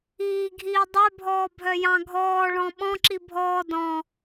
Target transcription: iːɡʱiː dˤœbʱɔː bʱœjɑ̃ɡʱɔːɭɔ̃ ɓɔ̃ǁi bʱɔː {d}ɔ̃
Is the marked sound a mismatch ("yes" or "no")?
no